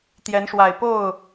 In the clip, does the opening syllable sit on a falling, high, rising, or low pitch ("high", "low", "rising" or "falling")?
rising